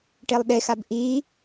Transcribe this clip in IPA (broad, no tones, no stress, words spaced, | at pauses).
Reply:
ʈelˠɗexab ʔiː